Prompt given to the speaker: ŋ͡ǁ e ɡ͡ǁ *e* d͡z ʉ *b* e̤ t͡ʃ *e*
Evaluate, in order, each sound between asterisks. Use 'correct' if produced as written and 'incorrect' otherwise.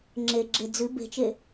correct, correct, correct

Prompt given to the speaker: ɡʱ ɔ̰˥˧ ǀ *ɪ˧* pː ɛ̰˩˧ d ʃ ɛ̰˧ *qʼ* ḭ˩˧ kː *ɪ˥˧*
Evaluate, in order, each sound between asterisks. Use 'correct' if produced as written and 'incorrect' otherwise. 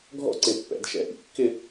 incorrect: ɪ˧˩, incorrect: ʔ, correct

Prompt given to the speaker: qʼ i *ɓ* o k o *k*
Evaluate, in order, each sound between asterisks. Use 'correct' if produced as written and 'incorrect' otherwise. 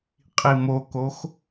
incorrect: m, incorrect: x

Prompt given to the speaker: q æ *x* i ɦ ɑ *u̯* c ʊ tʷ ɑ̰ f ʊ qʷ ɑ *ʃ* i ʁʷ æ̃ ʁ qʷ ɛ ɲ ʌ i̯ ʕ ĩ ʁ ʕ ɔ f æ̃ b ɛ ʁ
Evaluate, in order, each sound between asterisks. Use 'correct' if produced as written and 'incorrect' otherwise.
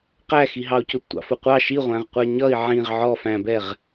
correct, correct, correct

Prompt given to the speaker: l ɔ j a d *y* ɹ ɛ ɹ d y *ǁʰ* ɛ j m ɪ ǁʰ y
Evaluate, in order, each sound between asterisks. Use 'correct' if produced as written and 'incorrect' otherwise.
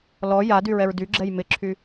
correct, incorrect: ɡ͡ǁ

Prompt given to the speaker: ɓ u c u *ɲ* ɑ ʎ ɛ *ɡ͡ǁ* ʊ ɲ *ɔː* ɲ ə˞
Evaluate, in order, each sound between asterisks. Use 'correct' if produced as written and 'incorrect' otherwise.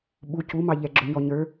incorrect: m, correct, incorrect: ɔ

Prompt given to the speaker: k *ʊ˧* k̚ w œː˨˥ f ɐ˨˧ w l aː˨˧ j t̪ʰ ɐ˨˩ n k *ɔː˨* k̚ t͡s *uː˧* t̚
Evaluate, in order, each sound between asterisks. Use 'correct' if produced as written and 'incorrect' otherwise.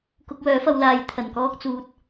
correct, incorrect: ɔː˥, correct

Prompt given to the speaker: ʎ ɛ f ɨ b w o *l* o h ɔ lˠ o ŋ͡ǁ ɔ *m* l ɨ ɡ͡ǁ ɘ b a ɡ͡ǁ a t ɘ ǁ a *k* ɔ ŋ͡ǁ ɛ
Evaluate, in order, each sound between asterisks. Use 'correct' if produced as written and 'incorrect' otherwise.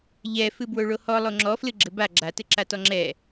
incorrect: ɭ, incorrect: f, incorrect: t

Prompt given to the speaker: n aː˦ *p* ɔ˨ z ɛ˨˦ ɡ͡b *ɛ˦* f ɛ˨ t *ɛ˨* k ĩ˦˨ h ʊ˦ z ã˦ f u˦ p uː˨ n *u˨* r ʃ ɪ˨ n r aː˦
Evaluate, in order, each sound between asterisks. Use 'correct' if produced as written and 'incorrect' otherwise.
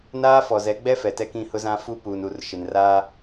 incorrect: f, correct, incorrect: ɛ˦, correct

